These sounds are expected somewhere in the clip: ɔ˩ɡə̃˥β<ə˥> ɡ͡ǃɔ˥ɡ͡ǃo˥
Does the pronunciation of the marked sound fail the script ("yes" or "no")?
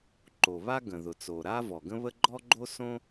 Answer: no